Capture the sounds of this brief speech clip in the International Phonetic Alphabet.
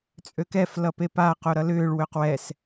t͡sʼ ø k ɛ f l ʌ p e p a q o ɾ ʌ l ʏː ɭ w ø q w ɛ s

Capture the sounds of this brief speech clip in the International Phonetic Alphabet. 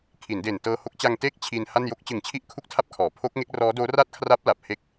kʰ i˩˦ n d e˨˩ n t ɤː˧ h o˦˥ k̚ t͡ɕ a˧ ŋ t eː˥˩ k̚ t͡ɕʰ i˧ n h a˥˩ n j o˥˩ k̚ t͡ɕ ɯ˨˩ ŋ t͡ɕʰ i˥˩ ʔ kʰ u˥˩ k̚ tʰ a˥˩ p̚ kʰ ɔː˩˦ pʰ o˦˥ k̚ ŋ e˦˥ k̚ r ɔː˦˥ d oː˦˥ r a˥˩ t̚ kʰ r a˦˥ p̚ l a˨˩ p̚ h e˦˥ k̚

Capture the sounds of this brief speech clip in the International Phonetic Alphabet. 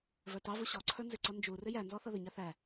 v ə˞ t ɑ v u ɕ ɔ ǀʰ ə˞ n z ɪ ǀ ʌ n d͡ʒ u r ɪ j æ n z ɔ θ ʌ ð ə ɲ ɑ θ æ

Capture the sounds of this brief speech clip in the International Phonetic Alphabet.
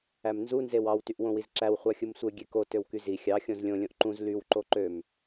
æ m n z u n z e w ɑ w t y ʔ w õ w i z ǁ æ w χʷ ɑ xʲ ɯ m sʷ e ɡʲ e k o t ø w k y z i xʲ ɑ xʲ õ z lʲ õ lʲ õ ʔ ǃ ũ z l y w ǃ o ǃ ø m

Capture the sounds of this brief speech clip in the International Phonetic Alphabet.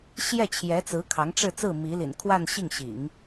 ɕ j ɛ˥˩ t͡ɕʰ j ɛ˧˥ t͡s ɹ̩˧˥ kʰ ɑ˧˥ ŋ ʈ͡ʂ ɻ̩˥˧ t͡s ɹ̩˥˩ m i˧˥ l ḭ˨˩ n kʰ w a˥˧ n ɕ i˥˩ ŋ ɕ ḭ˨˩˦ ŋ

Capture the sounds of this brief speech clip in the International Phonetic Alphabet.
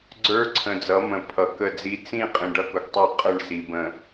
ɡ͡ǀ ə˞˦ ǀʰ ə̃˨ d͡z ʌ˨˦ m ə̃˨ pʰ ʌ˨ k ə˦˨ d͡z i˦ t͡s ĩ˦˨ qʼ ĩ˨ ɖ ʌ˦ k ʊ˨ ɡ tˤ ə˞˦˨ qʼ ə˦˨ ɳ s i˨ b ə̃˨

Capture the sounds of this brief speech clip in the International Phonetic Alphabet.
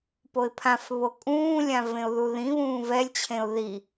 p o ɪ̯ pʰ ã f β o kʼ ũː lʲ ã v ẽ ʊ̯ ð u ð ĩ β ũː v ɛ lʲ t͡ɕʰ ẽ ʊ̯ ð i

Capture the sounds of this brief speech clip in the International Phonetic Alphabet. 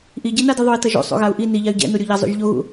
ʔ i ɟ e n a d i ðˤ o i̯ t ʌ ʒ o̰ sˤ o̰ ɣ a u̯ ʔ i n i ʎ a y̯ ɟ ɛ̰ n u ɾʲ o ʎ a zˤ o̰ ʒ ʎ o ɣ ṵ

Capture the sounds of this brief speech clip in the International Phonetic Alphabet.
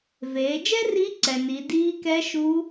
v eː˩˧ d͡ʒ ɛ˥ r i˧˥ ǀ ɛ˩ n i˩˧ d iː˧˥ k ɛ˧˥ ʃ u˧˥

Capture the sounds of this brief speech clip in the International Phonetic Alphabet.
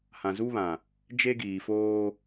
h ã˨ z u˦ β ã˨ | d͡ʒ e˦ ɡ iː˨ f oː˦

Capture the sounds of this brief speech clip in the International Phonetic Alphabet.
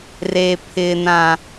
r e˨ pʰ ɪ˨ n ã˨

